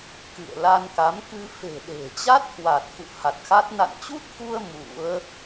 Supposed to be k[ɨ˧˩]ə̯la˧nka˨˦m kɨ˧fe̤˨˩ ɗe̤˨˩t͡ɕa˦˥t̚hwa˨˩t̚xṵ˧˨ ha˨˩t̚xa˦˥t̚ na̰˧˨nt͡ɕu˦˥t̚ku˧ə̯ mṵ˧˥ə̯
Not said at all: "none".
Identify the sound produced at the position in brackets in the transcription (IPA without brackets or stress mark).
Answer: ɨ̰˧˨